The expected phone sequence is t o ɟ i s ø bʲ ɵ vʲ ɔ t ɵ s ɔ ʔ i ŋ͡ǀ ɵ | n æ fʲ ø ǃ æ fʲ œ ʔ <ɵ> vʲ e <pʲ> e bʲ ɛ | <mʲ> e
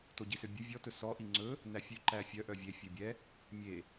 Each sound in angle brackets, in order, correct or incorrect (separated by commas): incorrect, incorrect, correct